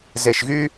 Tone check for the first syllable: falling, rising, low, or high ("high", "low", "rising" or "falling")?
low